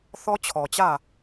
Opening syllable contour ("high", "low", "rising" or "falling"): high